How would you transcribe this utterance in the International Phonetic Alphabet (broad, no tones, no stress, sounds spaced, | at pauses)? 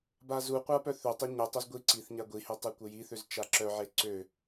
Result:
b a z u qʷ a p œ θ ø tˤ e ɲ ə tˤ o z ɡʷ i ǀ i θ ɲ a ɡʷ i h e tˤ e kʷ ə j i θ ø z t͡ʃ a ǁ œ ʕ e ǀ ø